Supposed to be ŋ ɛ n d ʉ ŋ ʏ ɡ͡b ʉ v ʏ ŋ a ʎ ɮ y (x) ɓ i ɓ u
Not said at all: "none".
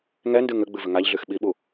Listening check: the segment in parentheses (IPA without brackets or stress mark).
x